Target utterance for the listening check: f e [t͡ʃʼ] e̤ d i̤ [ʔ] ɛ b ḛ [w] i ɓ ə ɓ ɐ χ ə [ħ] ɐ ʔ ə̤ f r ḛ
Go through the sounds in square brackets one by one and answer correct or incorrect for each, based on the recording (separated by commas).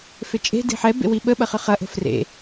correct, incorrect, correct, incorrect